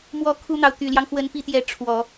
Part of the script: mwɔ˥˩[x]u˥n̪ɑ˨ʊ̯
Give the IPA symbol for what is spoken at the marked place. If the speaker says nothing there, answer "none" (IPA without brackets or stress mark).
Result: kʰ